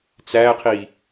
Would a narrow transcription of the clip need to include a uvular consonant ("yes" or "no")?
yes